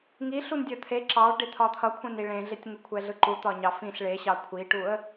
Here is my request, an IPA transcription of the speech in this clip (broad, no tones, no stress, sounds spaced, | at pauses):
ŋ i ɬ u n dʲ ʌ t̪ʰ e ǁ ɑ ɭ ɖ e t̪ʰ ɒ t̪ʰ ʌ kʷʰ ẽ n i ɭ ẽ ɮ e tʲ ŋ u kʷʰ ɛ ɮ ɯ ǃ u t̪ ɒ ɲ ɑ f ĩ ɬ ɭ e ɕ ɑ kʷʰ i ʈ u ə̯